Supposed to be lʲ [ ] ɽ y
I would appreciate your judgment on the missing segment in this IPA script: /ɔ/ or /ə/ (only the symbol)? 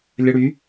ə